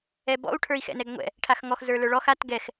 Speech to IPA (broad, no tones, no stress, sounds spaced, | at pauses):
ɛ b ɔ̰ u̯ ʈʰ ə˞ i̯ x ɛ̰ n ɛ ɡ ŋʷ ɛ̰ | ʈʰ a x ŋ ɔ x z ə˞ l ə˞ ɭ ɔ x a t ɡ ɛ x